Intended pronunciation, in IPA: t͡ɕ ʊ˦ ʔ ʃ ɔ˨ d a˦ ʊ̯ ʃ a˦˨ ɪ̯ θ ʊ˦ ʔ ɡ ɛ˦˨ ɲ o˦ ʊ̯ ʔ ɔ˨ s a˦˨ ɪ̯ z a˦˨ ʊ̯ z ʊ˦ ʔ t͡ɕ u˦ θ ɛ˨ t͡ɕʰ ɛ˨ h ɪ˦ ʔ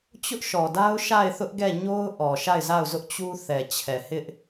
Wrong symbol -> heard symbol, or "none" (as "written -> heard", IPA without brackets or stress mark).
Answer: s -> ʃ